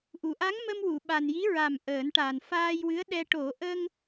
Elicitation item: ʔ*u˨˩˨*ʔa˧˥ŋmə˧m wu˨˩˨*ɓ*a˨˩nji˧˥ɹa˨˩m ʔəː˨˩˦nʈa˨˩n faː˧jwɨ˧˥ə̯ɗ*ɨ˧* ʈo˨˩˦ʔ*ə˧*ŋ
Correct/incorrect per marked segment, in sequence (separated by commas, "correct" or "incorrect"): correct, correct, incorrect, correct